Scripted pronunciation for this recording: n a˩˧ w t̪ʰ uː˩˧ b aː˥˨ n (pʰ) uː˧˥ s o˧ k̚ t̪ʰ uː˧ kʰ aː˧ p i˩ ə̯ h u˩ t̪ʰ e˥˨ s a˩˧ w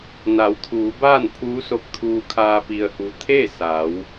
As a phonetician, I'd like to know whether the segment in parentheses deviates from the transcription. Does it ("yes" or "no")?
no